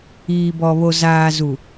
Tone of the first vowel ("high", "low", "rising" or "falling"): low